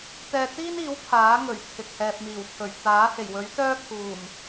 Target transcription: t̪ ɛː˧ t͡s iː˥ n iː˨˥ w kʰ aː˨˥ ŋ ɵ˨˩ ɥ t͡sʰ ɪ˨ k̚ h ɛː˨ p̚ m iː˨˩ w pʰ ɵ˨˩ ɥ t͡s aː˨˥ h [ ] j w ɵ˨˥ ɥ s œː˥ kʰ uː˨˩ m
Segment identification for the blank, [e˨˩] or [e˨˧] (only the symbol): e˨˩